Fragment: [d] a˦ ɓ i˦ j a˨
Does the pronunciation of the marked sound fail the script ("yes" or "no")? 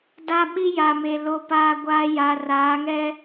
no